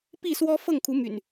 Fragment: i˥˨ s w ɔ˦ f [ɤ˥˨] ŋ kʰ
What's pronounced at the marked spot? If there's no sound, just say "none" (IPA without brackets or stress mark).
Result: ɤ˥˨